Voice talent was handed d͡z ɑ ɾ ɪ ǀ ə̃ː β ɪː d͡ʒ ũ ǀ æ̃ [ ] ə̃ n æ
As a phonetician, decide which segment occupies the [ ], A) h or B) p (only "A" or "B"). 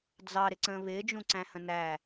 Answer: A